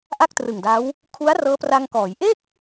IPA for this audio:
ʔa˥˩k̚trɯ˨˩ŋda˦˥w | kʰu˦˥a̯rɤː˦˥pra˧ŋkɔː˩˦j ʔe˥˩k̚

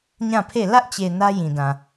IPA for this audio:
ɲã˦˨pʰe˦˨ lä˦ʔt͡ɕe˨ nä˦jĩ˨dã˨

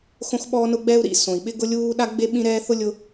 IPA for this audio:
xõ˥xɓɔː˥nʊ˥ ɡ͡bɛ˥u̯ɾḭ˥ sõ˩i̯ɓɪ˥ ɡʊ˥lʲuː˥ ɗa˥ɡ͡be˥ɓĩ˥ɾɛː˥ θʊ˥ lʲʊ˥

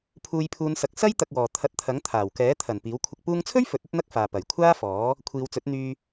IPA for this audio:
pʰuː˨˧jpʰuː˨˧nsɐ˨˥k̚ sɐ˥j t̪ɐ˧k̚wɔː˨ t̪ʰɐ˨˥t̚t̪ʰɐ˨˥ŋ t̪ʰaː˨˩w kɛː˨˥ t̪ʰɐ˨˩n piː˨˥wkʷʰɪ˧k̚ puː˧ŋt͡sʰɵ˥ɥ fɵ˨˥t̚ ɵ˥t̚n̪ɐ˥k̚faː˨ pɐ˨˩j kʷʰaː˥fɔː˨˥ | kʷʰiː˨˧wt͡sɵ˨˥t̚n̪yː˧

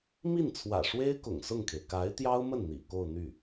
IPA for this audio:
mi˥˩nt͡sʰwä̰˨˩ ʂwe˥ɪ̯ kʊ̰˨˩ŋsʊ˥˩ŋkʰe˩ɪ̯ ka˧˥ɪ̯t̪jɑ˥ʊ̯mə˥˩n n̪ḭ˨˩ko˥˧ʊ̯ n̪y˥˩

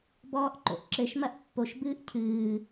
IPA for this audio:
bɔːʔǃo̰ʔǁɘʃ mɐʔpːoʃ bɨːʔcʰɨː

